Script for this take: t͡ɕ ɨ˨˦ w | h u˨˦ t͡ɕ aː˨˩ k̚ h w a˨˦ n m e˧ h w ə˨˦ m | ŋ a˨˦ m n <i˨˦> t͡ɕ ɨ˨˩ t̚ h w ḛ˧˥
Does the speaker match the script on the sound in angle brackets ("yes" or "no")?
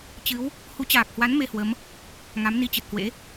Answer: no